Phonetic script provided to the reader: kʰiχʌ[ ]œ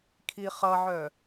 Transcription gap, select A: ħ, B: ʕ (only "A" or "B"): B